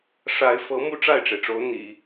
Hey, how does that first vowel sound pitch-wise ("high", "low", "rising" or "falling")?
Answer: rising